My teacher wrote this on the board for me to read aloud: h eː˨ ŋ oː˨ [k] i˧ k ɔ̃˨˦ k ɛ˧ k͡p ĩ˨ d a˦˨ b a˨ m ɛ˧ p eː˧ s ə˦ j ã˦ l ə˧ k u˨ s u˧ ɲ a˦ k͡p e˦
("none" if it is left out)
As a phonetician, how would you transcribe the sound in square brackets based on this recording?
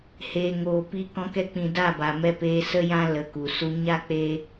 p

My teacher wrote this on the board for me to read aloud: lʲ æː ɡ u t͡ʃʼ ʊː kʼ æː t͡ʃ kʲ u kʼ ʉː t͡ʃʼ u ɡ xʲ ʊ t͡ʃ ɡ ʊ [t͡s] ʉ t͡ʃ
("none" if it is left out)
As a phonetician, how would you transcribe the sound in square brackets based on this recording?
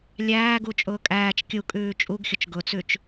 t͡s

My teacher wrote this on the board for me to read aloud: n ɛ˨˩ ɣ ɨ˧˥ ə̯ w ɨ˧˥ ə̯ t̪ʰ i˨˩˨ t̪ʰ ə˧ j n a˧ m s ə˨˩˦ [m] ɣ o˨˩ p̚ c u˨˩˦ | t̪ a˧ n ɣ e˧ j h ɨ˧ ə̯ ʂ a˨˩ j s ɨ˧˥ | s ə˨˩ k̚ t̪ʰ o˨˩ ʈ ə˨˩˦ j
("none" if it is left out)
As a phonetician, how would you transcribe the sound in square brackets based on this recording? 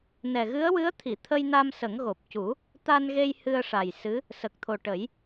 ŋ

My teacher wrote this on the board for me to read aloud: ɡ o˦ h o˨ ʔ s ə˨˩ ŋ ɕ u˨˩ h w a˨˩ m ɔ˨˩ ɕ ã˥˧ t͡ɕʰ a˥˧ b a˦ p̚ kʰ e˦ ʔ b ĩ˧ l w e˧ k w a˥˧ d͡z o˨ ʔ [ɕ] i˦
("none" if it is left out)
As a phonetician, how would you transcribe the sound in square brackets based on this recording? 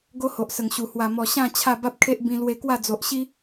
ɕ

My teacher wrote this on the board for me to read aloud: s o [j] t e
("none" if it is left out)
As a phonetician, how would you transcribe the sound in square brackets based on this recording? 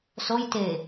j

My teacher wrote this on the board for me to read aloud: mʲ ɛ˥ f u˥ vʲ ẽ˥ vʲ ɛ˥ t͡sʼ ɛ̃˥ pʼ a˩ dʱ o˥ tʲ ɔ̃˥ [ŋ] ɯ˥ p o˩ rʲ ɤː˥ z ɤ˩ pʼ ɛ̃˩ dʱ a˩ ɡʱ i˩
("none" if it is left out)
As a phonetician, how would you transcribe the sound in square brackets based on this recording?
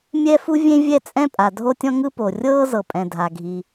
ŋ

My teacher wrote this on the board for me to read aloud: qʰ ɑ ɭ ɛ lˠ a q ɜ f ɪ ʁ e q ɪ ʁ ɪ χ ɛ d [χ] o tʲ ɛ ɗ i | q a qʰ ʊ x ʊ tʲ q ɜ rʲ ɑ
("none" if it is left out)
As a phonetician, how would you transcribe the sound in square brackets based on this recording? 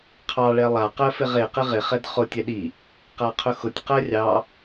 χ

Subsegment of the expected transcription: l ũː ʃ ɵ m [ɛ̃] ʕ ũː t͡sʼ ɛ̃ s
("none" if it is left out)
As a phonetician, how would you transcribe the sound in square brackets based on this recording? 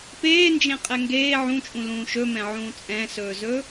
ɛ̃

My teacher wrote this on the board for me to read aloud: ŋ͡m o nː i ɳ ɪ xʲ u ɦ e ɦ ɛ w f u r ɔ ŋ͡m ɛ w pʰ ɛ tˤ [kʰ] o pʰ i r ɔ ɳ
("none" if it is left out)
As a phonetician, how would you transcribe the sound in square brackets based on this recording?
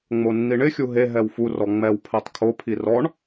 kʰ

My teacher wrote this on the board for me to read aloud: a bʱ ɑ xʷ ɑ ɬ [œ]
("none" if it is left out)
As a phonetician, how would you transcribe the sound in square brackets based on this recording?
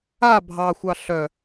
œ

